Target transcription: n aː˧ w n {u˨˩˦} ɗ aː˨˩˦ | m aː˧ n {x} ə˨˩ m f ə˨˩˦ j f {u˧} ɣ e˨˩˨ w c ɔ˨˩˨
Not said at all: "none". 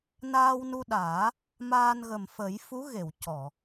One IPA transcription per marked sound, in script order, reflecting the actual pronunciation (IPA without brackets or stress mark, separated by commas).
u˧, ɣ, u˧˥